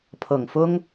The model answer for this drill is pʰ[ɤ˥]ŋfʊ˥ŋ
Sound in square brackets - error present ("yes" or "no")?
yes